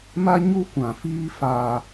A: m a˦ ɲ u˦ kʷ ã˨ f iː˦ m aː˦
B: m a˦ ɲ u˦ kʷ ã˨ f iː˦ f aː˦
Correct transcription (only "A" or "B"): B